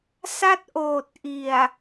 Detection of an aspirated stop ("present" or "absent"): absent